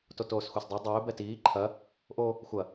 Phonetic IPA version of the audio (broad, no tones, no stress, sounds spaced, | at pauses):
t o t oː s xʷ ɛ s dˤ o dˤ ɵː b ɛ t iː ǃʰ ɐ | ʔ o | xʷ ɐ